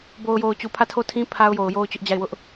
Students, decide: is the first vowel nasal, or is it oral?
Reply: oral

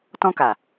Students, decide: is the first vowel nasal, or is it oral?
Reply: nasal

